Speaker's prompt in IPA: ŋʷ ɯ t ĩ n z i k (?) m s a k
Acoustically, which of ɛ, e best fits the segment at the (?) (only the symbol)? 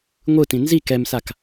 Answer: ɛ